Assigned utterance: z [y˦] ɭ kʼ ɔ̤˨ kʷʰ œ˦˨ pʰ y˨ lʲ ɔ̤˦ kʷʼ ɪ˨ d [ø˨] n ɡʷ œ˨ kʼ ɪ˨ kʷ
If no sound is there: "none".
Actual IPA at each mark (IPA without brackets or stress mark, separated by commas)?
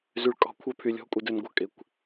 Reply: y˨, ø˨